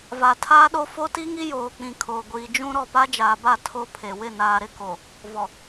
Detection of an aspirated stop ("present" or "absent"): present